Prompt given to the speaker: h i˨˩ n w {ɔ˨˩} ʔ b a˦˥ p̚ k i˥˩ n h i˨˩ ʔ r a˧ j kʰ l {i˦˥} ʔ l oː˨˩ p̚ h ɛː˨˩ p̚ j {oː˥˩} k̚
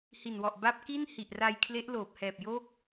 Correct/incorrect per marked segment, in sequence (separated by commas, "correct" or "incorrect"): correct, incorrect, correct